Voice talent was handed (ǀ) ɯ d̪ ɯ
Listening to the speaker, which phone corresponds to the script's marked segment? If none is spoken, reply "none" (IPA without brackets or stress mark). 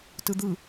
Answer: t